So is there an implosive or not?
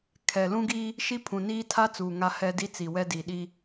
yes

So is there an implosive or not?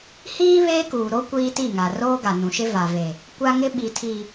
yes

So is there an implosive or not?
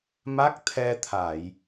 no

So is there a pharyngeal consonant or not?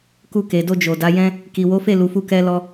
no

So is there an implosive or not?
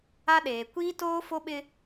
yes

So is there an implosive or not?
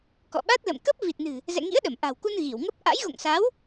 yes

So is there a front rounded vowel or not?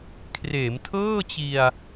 no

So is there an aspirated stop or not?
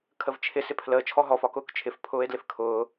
yes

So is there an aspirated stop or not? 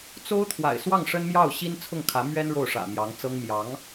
yes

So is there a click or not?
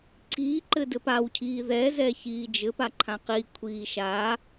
yes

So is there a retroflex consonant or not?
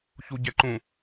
no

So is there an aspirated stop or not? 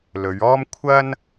yes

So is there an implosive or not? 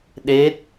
yes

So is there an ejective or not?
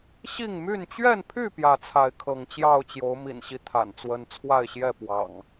no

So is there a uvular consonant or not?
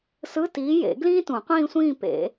yes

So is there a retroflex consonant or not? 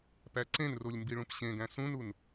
yes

